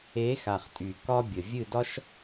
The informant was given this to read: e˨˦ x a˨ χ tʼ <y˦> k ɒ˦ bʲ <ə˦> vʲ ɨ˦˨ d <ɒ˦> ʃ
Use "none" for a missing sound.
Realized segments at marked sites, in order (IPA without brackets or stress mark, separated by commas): y˨, ə˨, ɒ˦